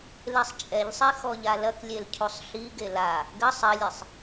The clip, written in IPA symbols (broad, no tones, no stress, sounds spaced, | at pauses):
l e sˤ t͡ʃʼ ɛ ʎ sˤ e x ɔ ʎ a l ɐ k lʲ e l cʰ u sˤ ɬ i ɡ e l a | ɡ ɘ sˤ ɘ lʲ e sˤ